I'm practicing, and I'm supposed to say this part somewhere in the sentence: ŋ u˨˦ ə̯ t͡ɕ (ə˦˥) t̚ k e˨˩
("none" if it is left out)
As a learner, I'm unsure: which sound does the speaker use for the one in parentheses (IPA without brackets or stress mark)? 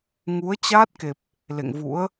a˦˥